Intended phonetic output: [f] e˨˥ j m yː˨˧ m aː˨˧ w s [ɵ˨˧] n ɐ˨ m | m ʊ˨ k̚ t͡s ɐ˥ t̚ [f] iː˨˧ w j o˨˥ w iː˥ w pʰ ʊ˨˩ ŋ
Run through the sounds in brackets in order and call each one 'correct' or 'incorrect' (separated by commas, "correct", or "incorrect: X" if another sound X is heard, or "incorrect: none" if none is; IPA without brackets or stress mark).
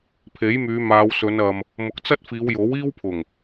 incorrect: pʰ, correct, correct